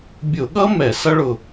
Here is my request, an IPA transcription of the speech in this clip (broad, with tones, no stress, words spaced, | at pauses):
bʲʊ˧˩˧ɠʌ˥ mɛ˧˩˧sʌ˥ɭʊ˧˩